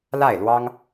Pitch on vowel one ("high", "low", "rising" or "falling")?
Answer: falling